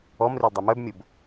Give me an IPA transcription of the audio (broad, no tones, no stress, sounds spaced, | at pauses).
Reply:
ɔ m r ø l dˤ œ m œ b mʲ o b